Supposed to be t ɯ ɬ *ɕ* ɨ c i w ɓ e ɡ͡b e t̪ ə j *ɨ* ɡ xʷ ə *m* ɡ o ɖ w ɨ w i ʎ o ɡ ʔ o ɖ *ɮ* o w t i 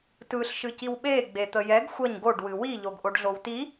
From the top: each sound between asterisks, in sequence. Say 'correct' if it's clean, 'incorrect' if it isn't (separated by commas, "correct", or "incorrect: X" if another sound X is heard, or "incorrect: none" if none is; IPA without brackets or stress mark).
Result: incorrect: ʃ, incorrect: ɛ, incorrect: ɲ, correct